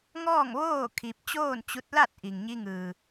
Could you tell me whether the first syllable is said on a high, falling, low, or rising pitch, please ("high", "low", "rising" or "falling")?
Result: falling